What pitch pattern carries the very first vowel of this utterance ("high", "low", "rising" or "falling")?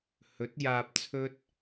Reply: rising